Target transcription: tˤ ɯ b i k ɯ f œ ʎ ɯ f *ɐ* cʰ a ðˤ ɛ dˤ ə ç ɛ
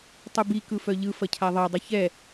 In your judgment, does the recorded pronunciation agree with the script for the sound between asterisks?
yes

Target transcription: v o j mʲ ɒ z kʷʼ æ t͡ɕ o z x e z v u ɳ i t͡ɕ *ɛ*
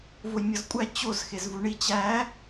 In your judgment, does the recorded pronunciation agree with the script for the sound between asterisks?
no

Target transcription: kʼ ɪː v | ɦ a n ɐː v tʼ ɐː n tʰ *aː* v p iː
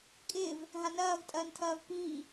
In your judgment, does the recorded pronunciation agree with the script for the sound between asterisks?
no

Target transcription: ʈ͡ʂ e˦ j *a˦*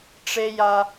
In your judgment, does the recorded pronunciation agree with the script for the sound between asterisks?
yes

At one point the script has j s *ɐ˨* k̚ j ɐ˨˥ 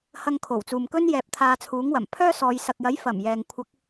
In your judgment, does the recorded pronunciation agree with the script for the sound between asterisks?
yes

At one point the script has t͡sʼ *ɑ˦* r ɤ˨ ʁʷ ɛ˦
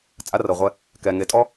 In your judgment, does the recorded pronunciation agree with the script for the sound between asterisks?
no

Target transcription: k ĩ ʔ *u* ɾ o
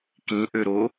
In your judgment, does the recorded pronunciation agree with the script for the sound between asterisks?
no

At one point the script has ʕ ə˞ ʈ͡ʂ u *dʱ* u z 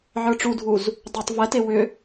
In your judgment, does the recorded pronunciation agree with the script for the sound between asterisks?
yes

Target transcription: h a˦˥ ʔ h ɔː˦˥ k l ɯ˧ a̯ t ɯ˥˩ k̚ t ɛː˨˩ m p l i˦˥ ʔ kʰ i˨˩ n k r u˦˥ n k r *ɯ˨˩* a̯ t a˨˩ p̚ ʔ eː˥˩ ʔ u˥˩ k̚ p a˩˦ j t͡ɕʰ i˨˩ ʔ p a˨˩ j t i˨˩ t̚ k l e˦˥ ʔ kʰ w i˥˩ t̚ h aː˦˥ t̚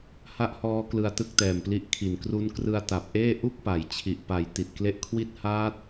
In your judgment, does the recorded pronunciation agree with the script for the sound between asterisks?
no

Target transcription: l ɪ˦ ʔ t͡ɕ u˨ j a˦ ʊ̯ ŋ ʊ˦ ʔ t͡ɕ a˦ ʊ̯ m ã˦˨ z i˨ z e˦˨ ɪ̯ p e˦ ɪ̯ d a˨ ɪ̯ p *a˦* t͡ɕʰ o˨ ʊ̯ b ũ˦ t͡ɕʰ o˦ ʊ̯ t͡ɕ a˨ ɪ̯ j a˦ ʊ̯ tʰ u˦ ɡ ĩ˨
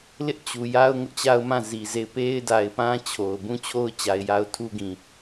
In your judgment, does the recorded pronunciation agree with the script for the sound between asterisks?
no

